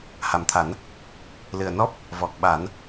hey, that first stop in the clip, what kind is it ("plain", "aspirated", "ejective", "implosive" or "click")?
aspirated